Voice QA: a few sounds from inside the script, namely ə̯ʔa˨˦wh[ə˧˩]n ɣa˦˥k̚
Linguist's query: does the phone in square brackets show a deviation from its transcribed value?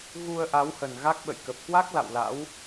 yes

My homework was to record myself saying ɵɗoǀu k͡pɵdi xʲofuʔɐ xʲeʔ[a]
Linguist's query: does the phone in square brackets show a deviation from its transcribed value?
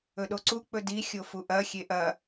yes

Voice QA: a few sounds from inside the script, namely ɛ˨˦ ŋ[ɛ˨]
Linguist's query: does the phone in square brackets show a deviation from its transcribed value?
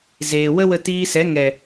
no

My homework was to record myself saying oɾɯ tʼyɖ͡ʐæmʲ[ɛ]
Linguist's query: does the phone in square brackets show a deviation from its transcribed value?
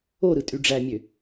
yes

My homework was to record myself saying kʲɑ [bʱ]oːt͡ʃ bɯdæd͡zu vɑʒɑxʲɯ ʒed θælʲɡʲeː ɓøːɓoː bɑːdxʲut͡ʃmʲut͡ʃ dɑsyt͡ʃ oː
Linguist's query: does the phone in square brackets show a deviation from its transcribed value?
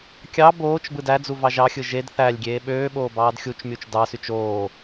yes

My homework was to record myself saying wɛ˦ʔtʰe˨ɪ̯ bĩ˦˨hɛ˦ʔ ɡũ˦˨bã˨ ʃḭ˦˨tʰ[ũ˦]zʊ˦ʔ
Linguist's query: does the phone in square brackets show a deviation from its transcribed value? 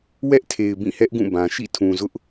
yes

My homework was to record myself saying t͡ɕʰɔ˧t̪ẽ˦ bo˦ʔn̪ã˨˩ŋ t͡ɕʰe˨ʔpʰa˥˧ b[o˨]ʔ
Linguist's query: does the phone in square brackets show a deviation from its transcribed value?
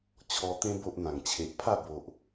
no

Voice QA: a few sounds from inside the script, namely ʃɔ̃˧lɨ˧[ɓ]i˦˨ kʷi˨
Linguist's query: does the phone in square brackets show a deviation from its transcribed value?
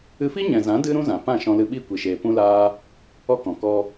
no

